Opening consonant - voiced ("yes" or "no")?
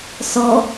no